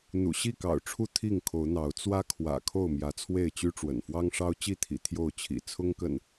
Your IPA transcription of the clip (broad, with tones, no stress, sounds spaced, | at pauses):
n̪ ṵ˨˩ ɕ i˥˨ k ɑ̰˨˩ ʊ̯ ʈ͡ʂʰ u˦ t̪ʰ i˥˨ ŋ kʰ o˨˦ ʊ̯ n̪ ɑ˨˦ ʊ̯ t͡s w ä˦ kʰ w ä̰˨˩ kʰ o˥˨ ʊ̯ m j ä˨˦ t͡sʰ w e˥˨ ɪ̯ t͡ɕ y˦ ʈ͡ʂ w ə̰˨˩ n f w ɑ˦ ŋ ʂ ɑ˦ ʊ̯ t͡ɕ i˥˨ t̪ʰ ḭ˨˩ t̪ʰ j o˥˨ ʊ̯ t͡ɕʰ ḭ˨˩ t͡sʰ ʊ˦ ŋ k ə̰˨˩ n